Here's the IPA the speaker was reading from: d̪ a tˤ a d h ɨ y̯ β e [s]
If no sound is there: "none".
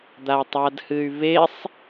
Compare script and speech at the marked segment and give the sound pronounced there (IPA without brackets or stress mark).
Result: sˤ